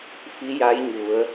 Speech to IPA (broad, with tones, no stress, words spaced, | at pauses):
fi˧˥ja˧˥jɲu˩˧ə̯